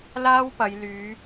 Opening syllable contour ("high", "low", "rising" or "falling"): high